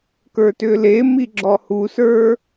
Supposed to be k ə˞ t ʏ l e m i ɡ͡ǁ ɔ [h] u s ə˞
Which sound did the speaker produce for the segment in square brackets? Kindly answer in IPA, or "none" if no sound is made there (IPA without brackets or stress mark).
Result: h